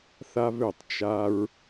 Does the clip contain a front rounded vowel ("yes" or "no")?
yes